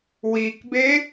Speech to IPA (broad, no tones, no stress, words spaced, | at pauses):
wikbe